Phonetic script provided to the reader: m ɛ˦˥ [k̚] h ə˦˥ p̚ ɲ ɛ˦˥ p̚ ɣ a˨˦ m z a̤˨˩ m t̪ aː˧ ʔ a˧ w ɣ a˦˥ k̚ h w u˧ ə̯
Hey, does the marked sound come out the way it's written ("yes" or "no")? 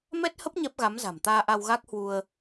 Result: no